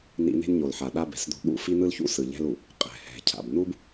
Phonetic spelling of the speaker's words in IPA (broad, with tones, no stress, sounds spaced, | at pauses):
n ḭ˦ n e̤˦ n ɲ o˨ l ħ a˨ ɗ a˦ b ɛ̤˨ s d̪ o̤˦ ɠ ṵ˦˨ f i˦ n̪ ɯ˦ l ç ṵ˦ s ɯ˨ ʎ ɛ̤˦ l u˨ | qʼ ɛ̤˨ h ɛ̤˨ cʰ a̰˨ b n u˦ b